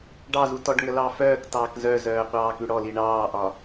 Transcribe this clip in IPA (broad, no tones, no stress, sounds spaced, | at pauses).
ɖ ɑ z u t ɔ ɖ ŋ ə l ɑ f œː k t ɑː k z œ z œː qʷ ɑː k ʉ ɽ ɔ l i ɳ ɑː ʔ ɒ